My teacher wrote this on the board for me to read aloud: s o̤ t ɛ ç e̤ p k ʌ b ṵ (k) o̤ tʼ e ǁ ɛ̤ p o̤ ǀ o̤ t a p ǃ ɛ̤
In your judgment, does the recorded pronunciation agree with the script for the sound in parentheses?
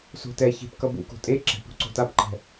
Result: yes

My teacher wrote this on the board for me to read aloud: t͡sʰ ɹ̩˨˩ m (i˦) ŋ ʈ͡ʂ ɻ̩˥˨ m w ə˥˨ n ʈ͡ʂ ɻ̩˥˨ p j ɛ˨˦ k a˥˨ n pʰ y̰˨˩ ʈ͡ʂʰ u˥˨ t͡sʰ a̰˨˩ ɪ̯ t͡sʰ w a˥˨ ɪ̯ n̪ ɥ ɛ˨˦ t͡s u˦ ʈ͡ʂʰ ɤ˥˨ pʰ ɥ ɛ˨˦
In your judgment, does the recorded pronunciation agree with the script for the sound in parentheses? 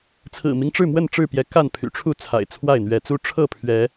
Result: yes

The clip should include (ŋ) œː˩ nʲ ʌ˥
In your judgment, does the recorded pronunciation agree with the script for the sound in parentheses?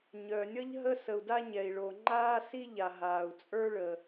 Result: no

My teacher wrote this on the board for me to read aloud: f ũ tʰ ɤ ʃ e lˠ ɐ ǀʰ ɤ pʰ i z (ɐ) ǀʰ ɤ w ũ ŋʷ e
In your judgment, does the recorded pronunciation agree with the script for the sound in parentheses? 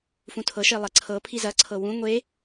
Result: yes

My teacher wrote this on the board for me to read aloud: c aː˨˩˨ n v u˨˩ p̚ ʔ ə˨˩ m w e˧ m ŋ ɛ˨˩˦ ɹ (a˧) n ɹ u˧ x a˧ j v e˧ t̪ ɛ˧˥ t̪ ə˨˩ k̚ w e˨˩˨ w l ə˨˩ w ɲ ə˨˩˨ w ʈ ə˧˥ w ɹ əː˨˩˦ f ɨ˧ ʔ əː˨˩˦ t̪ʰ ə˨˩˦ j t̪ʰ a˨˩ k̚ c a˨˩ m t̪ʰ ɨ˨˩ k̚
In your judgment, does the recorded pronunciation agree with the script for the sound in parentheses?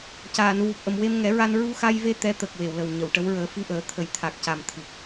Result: yes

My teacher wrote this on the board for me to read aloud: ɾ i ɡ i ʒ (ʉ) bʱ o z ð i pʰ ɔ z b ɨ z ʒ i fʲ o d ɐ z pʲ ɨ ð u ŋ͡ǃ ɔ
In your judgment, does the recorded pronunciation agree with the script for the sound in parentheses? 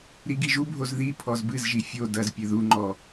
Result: no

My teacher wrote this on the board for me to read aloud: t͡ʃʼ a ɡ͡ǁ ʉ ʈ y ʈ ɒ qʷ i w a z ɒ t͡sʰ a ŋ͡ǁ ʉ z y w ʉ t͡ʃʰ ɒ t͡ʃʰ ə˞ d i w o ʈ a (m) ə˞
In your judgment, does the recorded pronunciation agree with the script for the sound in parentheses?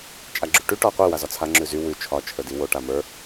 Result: yes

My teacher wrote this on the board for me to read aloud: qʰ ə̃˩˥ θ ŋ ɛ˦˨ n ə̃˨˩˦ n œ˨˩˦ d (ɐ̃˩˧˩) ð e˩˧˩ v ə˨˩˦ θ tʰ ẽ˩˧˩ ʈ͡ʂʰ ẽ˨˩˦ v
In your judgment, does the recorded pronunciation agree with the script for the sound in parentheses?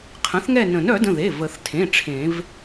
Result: no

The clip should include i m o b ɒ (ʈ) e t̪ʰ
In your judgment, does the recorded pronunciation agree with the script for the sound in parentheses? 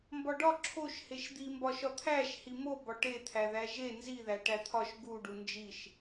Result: yes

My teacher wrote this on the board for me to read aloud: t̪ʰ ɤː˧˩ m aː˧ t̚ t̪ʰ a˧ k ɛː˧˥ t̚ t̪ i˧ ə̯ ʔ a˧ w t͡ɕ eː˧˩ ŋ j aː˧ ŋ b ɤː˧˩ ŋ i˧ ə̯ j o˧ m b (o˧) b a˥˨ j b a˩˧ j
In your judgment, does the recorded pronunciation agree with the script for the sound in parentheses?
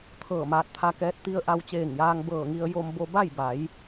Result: yes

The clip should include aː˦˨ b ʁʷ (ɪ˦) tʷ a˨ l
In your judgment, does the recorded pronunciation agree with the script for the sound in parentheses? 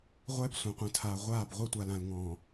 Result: no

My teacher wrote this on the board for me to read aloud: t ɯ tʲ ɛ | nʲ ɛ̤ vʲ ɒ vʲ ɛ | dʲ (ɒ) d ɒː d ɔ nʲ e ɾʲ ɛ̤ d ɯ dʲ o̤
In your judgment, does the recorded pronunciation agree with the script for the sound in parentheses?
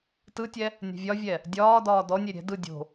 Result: no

